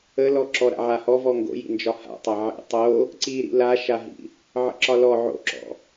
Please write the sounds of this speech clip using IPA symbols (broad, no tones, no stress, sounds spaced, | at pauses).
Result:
ə l ɔ ǁ ɔ ɾ a̰ ʕ a h ɔ v ɔ ŋ ɡ o̰ j ḭ n d͡ʒ ɒ h a̰ tˤ a ʕ ḭ tˤ o | ǀ i ɾ ḭ l a ʃ a ɦ ḭ | ʕ ə̰ ǁ ɒ l ɔ ʕ o̰ ǁ ɔ̰